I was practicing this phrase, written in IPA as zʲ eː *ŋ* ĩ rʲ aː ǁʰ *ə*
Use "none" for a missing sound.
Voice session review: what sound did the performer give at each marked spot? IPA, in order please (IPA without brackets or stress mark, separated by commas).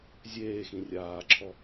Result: x, ɔ